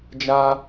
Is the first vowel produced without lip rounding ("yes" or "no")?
yes